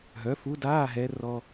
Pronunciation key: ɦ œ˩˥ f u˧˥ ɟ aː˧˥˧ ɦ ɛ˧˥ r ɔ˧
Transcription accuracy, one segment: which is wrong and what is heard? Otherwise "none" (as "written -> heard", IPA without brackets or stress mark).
ɟ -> d